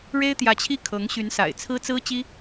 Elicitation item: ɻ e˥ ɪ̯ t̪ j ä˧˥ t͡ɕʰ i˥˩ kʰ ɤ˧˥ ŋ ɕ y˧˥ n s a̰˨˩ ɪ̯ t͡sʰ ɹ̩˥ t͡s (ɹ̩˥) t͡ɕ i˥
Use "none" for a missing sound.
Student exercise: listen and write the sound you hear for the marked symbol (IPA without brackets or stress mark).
ɹ̩˥